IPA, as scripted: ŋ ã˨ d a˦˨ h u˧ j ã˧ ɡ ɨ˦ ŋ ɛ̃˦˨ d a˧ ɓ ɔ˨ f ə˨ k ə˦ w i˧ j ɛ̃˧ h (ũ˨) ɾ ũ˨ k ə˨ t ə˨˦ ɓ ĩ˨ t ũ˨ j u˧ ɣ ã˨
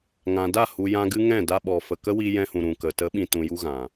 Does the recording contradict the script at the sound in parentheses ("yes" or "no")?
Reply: no